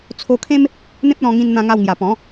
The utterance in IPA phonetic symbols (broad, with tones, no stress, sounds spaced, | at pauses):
t͡sʰ o˧ kʰ ẽ˦ m | n̪ ẽ˦ p̚ l ɔ̃˧ ŋ ĩ˧ n n̪ ã˧ ŋ a˧ w ŋ j a˨˩ p ɔ̃˨˦